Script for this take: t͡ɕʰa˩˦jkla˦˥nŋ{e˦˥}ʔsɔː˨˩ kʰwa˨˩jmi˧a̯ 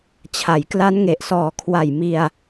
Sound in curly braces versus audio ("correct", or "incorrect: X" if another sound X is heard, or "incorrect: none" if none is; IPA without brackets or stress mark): incorrect: e˨˩